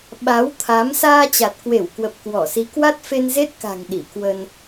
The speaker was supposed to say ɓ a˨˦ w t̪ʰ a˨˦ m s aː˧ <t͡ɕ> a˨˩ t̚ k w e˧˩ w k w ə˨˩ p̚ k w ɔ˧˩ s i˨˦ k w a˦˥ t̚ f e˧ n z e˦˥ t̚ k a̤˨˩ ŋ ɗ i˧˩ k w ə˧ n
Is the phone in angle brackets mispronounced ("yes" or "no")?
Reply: no